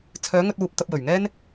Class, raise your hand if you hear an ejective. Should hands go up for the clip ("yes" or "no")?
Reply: no